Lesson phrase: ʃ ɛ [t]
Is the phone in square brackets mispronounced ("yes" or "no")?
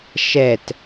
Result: no